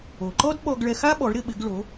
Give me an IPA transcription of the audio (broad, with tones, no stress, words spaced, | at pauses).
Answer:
o˩ǃɔ˥dɓɔ˧ɡ ɭɛ˧xa˥ ɓɔ˩˥ɭɾɪ˧ɓɪ˩˥ɡ ɭo˩˥